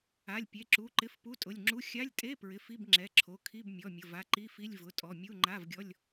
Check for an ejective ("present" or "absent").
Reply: present